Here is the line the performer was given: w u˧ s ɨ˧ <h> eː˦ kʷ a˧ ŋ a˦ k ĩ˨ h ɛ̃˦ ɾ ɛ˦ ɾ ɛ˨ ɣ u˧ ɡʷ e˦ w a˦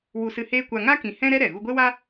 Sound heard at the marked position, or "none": h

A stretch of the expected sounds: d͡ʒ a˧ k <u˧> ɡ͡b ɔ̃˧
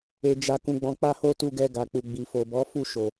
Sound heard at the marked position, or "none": ũ˧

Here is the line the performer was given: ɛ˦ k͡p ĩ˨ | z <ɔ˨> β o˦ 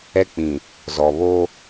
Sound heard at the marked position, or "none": ɔ˨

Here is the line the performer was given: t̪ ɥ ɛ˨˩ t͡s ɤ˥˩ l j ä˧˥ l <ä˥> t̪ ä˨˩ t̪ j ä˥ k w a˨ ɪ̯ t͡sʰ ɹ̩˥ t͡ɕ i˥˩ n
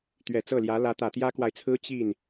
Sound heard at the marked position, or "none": ä˧˥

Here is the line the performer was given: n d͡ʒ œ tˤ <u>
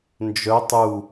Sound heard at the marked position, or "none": u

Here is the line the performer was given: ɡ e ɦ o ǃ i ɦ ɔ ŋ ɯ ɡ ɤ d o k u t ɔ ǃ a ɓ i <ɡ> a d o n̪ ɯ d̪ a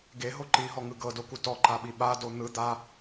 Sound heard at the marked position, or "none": ɓ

